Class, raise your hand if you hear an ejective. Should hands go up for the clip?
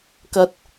no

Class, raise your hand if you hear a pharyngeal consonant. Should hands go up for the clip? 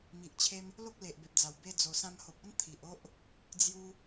no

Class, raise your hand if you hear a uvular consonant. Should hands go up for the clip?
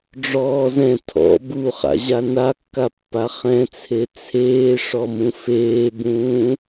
yes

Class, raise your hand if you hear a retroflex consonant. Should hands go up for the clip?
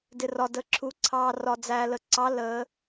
no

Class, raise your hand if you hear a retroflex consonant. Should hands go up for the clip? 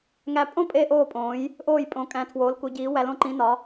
no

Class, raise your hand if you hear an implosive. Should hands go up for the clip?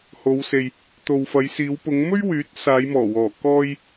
no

